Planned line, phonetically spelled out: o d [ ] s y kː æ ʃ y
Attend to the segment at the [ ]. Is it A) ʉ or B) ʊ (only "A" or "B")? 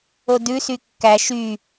A